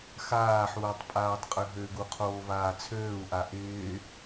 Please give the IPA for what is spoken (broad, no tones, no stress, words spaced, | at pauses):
xaːħuːtˤ pʼaːtˤqʼøɦøɡu qʰoːvaːt͡sʰøːu̯ʔa ʔɪː